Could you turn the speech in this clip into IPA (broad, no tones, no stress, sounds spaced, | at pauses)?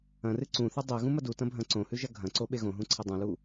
ɐ̃ r ɨ ǀ ũ θ ɨ dˤ e ɣ ũ m ɐ d u t ɐ̃ bʱ ɐ̃ ǀ õ h ʉ ʒ ɐ ɡʱ ɐ̃ ǀ o ɓ e ɣ õ ɦ ũ ǀʰ ɐ dˤ ũ l u